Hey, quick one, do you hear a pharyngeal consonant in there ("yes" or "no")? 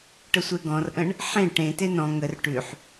yes